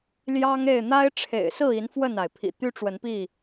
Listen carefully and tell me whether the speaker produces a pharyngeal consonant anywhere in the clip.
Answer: no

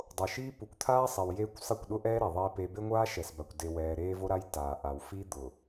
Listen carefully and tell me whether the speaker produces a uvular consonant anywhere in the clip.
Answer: no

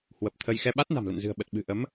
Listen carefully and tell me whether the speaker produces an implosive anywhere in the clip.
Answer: yes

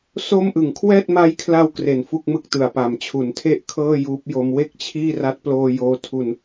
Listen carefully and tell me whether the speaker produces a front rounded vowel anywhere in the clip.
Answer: no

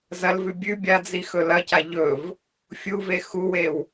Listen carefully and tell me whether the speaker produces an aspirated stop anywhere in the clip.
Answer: no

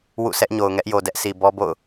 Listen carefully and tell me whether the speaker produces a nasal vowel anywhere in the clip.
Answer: no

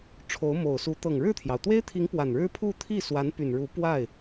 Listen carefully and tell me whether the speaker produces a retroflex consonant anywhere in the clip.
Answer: yes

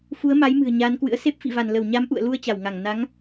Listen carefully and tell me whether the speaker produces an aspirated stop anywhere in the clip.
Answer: no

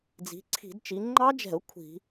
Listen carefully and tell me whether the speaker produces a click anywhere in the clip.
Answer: yes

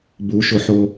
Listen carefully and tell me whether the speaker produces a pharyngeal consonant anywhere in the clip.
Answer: yes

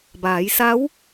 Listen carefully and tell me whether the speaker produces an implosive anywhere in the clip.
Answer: no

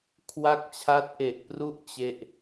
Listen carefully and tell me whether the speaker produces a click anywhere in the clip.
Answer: no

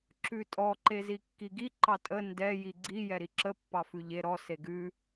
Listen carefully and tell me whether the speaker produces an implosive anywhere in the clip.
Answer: no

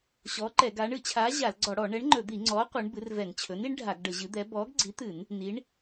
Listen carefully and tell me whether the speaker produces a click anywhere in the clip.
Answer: yes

